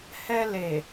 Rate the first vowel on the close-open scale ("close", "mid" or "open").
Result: mid